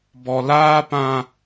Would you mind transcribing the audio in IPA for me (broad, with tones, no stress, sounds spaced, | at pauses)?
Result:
b ɔ˨ l aː˦ p ã˦